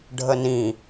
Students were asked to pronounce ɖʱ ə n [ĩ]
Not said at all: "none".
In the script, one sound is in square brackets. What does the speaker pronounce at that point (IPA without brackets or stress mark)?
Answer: ĩ